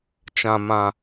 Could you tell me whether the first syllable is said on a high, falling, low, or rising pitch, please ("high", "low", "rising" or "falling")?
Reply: low